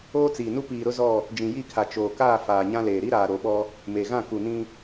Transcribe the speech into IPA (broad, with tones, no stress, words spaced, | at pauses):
oː˦t͡siː˨nu˦ piː˨ɾʊ˦zɔ˦˨ | d͡ʒĩ˨ji˦˨kʰa˨ t͡ʃoː˨ kaː˦˨ faː˨ɲã˦leː˨ ɾi˦ɾaː˨ ɾo˨ɓɔ˦ | me˨ɣã˦˨ ku˨nĩ˦